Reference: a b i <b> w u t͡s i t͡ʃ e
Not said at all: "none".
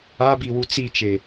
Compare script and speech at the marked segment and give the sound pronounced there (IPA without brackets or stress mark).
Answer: none